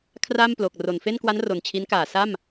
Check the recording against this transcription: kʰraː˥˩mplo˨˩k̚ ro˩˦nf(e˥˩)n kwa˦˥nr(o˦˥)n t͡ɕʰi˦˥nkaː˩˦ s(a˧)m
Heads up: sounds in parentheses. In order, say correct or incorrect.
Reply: correct, incorrect: o˨˩, incorrect: a˥˩

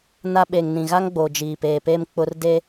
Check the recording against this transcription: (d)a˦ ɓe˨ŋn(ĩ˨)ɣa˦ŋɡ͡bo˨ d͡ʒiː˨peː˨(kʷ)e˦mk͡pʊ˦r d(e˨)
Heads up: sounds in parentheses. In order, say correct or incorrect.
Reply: incorrect: n, correct, incorrect: p, incorrect: e˦

